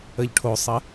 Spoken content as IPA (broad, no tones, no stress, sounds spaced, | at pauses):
ə ʎ ʈʰ o sˤ ə